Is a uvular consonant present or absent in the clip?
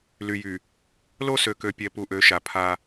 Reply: absent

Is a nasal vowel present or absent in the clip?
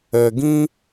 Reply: present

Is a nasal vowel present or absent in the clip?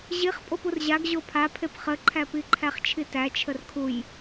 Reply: absent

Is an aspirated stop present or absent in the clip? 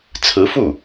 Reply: present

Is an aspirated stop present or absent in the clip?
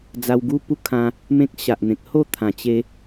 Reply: present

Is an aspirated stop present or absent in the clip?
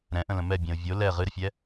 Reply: absent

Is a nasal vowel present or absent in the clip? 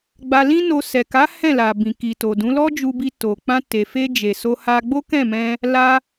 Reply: present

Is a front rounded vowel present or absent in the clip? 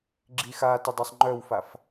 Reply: present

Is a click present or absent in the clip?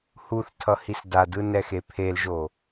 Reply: absent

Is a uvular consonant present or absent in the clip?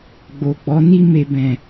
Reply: absent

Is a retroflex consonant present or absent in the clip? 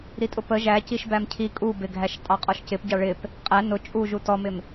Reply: present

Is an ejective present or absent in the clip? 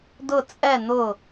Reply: present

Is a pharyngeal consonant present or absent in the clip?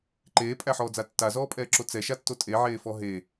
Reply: present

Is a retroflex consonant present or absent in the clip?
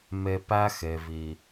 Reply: absent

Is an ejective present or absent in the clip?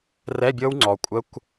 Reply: present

